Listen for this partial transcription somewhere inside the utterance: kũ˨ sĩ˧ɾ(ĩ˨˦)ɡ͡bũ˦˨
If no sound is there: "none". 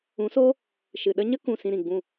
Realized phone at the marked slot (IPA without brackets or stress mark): ĩ˨